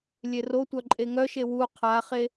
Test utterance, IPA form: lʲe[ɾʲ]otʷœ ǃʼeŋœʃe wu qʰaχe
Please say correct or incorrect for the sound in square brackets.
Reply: incorrect